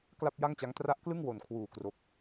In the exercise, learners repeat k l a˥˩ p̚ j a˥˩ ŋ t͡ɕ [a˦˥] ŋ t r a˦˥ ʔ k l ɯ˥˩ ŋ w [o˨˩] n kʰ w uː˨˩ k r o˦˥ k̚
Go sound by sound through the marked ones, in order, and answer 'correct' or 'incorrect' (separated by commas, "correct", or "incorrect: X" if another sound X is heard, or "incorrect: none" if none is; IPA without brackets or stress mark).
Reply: correct, correct